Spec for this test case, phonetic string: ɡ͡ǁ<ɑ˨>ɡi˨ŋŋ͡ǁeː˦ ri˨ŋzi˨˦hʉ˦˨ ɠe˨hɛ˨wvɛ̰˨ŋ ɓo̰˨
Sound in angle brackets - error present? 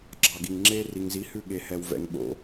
no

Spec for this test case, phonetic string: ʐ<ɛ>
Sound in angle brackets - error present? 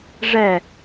no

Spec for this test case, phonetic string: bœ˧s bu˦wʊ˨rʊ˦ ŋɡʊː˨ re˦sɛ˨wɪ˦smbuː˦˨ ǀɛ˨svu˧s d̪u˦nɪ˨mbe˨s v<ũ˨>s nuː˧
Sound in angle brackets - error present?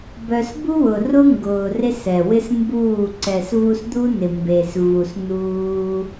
yes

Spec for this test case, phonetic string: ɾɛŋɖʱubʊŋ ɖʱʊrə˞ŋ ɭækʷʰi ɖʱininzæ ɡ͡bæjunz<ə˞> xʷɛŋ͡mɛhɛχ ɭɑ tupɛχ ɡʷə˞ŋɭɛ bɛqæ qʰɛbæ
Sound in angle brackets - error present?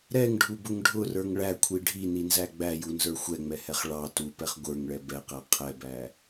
no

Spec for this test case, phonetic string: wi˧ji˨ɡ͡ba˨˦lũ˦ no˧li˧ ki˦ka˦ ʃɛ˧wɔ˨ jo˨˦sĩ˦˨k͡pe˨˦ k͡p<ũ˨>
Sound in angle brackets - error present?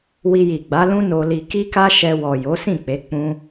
yes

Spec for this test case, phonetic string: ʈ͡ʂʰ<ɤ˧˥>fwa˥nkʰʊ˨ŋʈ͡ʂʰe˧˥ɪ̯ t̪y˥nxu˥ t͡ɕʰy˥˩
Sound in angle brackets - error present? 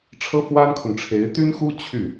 yes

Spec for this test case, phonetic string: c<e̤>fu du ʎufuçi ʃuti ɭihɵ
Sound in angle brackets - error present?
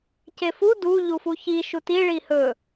yes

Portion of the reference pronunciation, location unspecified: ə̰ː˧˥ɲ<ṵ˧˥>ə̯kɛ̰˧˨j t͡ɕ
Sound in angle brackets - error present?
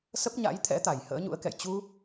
no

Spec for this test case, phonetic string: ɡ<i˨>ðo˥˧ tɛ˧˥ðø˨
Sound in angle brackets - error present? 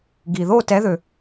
no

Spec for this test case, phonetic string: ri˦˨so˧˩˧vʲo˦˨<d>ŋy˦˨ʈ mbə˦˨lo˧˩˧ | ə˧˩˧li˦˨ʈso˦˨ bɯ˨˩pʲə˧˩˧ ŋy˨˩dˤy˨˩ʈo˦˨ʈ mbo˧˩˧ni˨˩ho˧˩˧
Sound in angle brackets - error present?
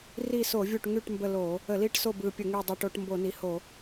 yes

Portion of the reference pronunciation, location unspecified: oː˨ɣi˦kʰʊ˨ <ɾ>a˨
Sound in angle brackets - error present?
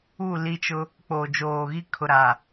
no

